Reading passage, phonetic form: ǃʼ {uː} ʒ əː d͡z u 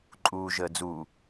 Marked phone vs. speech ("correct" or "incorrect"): correct